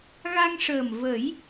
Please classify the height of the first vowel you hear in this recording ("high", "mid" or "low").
low